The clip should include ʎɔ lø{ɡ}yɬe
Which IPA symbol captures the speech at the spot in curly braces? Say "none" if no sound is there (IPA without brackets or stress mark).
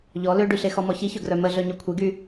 ɖ